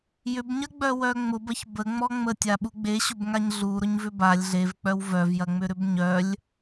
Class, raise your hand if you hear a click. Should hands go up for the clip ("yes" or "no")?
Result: no